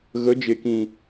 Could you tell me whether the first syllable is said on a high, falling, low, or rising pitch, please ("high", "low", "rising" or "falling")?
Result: rising